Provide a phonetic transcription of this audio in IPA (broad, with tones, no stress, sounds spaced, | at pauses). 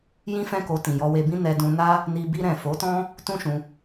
j ĩ˦ f ɛ̃˦ k o˧ t ĩ˨ j ɔ˧ w e˧ b ĩ˦ n ɛ˧ d ũ˧ n a˦ | n i˧ b i˧ ɾ ɛ̃˨ f o˨˦ t ɔ̃˦ | t ũ˦ ʃ ũ˧